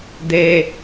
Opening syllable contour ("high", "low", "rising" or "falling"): low